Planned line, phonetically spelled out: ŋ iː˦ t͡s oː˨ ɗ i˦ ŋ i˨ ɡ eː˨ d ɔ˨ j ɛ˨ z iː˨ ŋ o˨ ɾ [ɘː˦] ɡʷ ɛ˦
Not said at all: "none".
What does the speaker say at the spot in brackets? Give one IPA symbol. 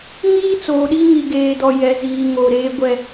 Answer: eː˦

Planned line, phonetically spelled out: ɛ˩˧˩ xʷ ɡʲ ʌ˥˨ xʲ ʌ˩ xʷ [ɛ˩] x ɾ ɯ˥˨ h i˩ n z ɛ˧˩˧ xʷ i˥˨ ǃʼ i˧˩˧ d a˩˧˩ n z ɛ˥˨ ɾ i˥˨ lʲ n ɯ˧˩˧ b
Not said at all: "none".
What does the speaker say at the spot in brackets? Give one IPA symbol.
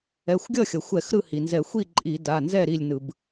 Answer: ɛ˧˩˧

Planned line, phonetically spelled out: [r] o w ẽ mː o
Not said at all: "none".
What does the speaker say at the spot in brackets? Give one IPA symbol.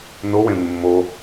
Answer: n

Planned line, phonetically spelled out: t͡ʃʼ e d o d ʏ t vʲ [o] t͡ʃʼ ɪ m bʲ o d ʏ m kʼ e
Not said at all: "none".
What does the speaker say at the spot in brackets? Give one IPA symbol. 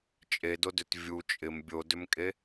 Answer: u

